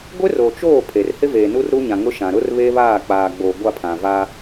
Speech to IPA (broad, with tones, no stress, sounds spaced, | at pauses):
ɡʷ ɪ˦ r o˨ t͡ʃ oː˦˨ pʰ e˨ r h ɪ˦ v eː˨ n u˦ r ɾ u˦ ɲ ã˨ ŋ ʊ˦ ʃ ã˨ ɾ ʊ˦ r β e˦ β aː˦˨ k͡p aː˨ ɡ͡b o˨ ɡʷ a˦˨ pʰ ã˨ v a˦